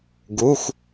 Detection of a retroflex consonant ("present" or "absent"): absent